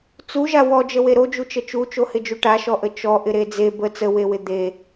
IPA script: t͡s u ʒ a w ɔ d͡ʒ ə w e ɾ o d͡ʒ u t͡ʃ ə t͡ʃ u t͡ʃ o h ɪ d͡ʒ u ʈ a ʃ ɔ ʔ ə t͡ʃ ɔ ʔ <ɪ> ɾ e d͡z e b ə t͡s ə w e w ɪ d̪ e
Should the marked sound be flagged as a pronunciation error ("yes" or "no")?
no